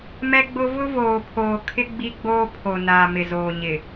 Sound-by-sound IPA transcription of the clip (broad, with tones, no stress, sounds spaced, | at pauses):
m ɛ˦ ɡ͡b ʊ˦ v ʊ˦ v oː˨ pʰ oː˨ kʰ ɪ˦ ɡ͡b i˦ ɡ͡b oː˦ pʰ o˨ n aː˨ m ɪ˨ z oː˨ ɲ ɪ˨